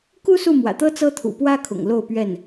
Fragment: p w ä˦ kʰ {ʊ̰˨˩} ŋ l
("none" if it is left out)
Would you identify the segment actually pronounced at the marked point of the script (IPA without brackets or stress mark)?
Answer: ʊ̰˨˩